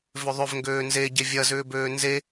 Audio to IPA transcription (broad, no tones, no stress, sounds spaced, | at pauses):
v ʏ ðˤ ʏ v ŋ ɡ øː n z e ɟ e vʲ ɐ z ʏː b øː n z e